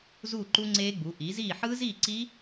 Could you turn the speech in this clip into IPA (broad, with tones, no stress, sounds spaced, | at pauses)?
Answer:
z uː˥˨ ǃ u˦˥ ŋ͡ǀ eː˦˥ ɡ͡b u˩˥ ʔ iː˩˥ z iː˥˨ ħ ɯː˦˥ z iː˥˨ ǀ i˦˥